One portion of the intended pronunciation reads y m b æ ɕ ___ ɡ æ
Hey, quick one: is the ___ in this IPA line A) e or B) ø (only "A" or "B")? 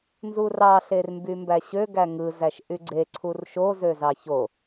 B